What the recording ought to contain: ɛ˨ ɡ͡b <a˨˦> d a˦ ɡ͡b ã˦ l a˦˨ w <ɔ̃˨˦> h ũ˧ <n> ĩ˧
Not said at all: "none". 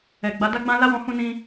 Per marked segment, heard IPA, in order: a˨˦, ɔ̃˨˦, n

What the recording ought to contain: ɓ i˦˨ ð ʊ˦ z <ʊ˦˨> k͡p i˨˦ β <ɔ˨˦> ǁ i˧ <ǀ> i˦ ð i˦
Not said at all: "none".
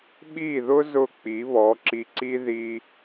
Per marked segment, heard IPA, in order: ʊ˦˨, ɔ˨˦, ǀ

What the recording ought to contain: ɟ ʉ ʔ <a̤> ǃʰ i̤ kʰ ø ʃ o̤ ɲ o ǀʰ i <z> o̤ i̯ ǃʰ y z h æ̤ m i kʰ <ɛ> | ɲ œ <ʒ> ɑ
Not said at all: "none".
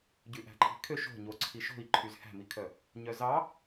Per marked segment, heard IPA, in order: æ̤, ʃ, œ, z

